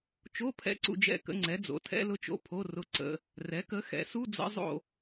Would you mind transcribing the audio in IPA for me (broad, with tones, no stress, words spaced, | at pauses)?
t͡ʃo˧˥˧pʰɛ̰˧˥˧ǀṵ˦˨d͡ʒɛ̰˦˨ kə̰˧˥˧ŋ͡ǀɛ˩˥ d͡zo̰˩˥tʰɛ̰˧˥˧lʊ˦˨t͡ʃo̰˧˥˧ pʰo˧˥˧rʊ˦˨ ǀə̰˧˥˧ | rɛ˩˥kə˩˥ xɛ̰˩˥su˧˥˧d͡zə̰˧˥˧ zˤo̰˦˨